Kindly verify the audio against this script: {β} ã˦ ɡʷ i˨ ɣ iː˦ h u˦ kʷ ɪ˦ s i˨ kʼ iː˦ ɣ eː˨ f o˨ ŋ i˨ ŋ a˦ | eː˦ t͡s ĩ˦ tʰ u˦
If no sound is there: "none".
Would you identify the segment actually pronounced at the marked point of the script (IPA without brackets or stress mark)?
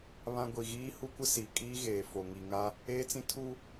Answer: β